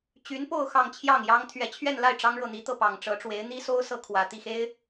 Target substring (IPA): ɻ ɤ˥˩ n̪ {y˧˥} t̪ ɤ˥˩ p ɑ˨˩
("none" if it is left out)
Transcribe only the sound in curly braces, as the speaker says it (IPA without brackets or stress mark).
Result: i˧˥